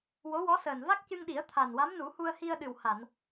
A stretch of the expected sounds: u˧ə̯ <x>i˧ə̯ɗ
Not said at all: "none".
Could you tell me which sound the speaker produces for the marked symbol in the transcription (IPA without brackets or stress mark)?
h